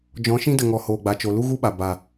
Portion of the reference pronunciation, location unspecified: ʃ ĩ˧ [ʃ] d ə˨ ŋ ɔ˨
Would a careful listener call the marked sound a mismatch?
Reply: yes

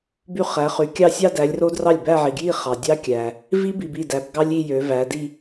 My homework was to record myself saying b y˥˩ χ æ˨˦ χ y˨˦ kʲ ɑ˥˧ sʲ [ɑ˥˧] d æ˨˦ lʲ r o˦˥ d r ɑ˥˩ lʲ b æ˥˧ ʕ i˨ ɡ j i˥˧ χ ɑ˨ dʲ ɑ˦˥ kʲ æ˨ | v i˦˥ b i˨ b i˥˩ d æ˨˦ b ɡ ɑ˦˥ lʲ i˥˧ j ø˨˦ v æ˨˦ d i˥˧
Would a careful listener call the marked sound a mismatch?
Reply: no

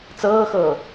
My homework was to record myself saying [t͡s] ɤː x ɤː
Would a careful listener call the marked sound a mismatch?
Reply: no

